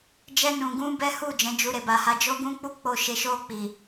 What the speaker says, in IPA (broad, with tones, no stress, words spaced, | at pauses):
d͡ʒɛ˧nũ˨ɡũ˧ bɛ˦hu˦˨ d͡ʒɛ̃˨˦d͡ʒu˧ ɾe˨ba˨ha˧ d͡ʒo˦ɡũ˦ k͡pu˦˨ k͡po˨ʃe˨ʃo˧ k͡pi˨